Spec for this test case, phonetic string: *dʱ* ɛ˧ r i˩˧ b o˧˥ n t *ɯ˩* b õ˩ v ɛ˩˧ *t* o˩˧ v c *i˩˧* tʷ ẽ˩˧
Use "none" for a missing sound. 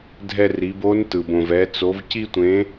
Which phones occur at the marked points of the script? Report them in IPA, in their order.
dʱ, ɯ˩, t͡s, i˧

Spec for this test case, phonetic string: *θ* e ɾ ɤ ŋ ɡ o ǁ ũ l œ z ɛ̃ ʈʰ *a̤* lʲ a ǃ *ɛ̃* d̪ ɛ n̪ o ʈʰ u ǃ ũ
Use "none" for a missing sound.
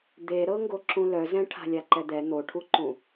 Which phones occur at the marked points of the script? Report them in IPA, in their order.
d̪, a̤, ɛ

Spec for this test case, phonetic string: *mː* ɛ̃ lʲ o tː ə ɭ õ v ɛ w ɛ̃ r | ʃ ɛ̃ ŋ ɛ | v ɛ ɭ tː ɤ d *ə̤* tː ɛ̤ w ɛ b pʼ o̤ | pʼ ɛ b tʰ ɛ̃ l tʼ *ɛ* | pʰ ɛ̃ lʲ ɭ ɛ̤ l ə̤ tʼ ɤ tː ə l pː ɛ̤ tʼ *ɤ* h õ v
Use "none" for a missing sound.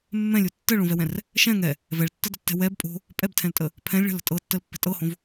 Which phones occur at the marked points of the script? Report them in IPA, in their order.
mː, ə̤, ə, ɤ

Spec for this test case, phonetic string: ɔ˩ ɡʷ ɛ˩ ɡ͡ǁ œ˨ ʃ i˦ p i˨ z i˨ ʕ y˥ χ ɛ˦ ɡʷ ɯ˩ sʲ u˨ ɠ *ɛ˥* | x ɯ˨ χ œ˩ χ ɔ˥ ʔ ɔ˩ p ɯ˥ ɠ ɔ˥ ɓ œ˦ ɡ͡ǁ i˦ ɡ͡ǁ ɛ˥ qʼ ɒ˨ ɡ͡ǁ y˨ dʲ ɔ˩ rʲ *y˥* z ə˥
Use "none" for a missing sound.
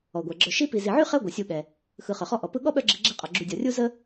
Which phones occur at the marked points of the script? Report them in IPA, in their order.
ɛ˩, u˥

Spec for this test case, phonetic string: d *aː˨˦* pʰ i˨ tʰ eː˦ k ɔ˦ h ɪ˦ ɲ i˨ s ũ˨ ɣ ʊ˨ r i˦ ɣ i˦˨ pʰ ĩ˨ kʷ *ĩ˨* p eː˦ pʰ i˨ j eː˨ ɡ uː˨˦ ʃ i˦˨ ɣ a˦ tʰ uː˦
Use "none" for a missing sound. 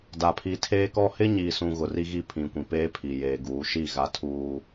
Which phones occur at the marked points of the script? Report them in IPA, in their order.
aː˨, ĩ˨

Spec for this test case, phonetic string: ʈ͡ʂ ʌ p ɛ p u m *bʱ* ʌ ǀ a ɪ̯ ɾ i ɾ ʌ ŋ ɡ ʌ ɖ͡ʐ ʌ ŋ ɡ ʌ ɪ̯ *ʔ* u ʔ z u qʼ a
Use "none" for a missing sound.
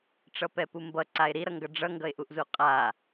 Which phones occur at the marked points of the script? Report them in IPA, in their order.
b, ʔ

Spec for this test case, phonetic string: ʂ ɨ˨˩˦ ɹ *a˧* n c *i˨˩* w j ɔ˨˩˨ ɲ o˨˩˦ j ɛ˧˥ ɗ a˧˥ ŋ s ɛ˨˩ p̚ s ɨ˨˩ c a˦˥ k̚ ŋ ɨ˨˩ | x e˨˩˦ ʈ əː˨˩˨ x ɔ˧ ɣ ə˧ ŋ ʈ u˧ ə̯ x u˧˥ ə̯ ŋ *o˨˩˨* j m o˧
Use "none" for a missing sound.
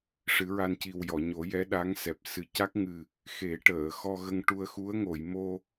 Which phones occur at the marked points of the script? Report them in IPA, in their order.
a˧, i˨˩, o˨˩˨

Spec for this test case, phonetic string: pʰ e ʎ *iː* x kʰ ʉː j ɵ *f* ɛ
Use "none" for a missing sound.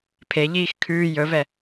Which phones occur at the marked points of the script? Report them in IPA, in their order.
iː, v

